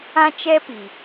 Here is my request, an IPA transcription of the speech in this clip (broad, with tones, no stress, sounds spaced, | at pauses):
ã˦ t͡ʃ ɛ˦ p i˨